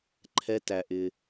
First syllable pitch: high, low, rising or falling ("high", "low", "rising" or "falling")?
low